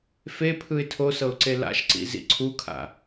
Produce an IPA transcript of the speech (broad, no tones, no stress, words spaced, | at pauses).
fe pʰɯɪ̯tʰosɤʊ̯ǀe la̰ʃǀḭ zḭǀʰukʰa̰